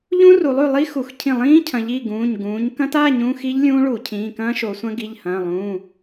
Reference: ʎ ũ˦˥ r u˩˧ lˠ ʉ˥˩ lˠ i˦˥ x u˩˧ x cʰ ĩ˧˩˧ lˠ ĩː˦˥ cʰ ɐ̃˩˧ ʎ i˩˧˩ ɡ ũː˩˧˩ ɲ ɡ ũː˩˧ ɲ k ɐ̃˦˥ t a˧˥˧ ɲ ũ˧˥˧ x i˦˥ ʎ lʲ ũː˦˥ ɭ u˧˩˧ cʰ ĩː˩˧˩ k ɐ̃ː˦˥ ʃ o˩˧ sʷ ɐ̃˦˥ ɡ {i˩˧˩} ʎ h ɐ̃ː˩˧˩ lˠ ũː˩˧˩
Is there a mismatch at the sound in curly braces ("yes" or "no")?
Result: no